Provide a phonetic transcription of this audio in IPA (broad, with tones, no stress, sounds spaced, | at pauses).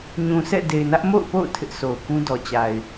ɲ ũ˨ s ɛ̰˦˨ d e˨ ɪ̯ n ä˦ ʔ m o̰˦˨ ʊ̯ p o̰˦˨ ʊ̯ tʰ ɪ˦ ʔ sʰ o˨ ʊ̯ k ũ˦ d ɔ˨ t͡ɕ a˨ ɪ̯